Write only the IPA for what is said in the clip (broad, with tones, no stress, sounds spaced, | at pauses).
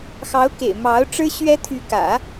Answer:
x ɑ˧˥ ʊ̯ k ḛ˨˩ ɪ̯ m ɑ˧˥ ʊ̯ ʈ͡ʂ ɻ̩˥ ɕ ɥ ɛ˥ t̪ʰ y˧˥ k ä̰˨˩˦